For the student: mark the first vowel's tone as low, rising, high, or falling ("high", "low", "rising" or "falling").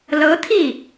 rising